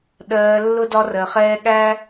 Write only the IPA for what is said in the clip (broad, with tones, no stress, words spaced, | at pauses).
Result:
ɗɜː˧ lːʊ˦dɒ˦rɜ˧χɛː˦ ɠæ˦